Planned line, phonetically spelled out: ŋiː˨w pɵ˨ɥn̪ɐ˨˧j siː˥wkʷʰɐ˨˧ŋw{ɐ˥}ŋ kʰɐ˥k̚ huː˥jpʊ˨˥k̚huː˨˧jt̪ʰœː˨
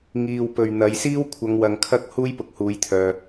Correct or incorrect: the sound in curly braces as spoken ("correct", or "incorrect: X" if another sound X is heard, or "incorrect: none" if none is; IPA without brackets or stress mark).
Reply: incorrect: ɐ˨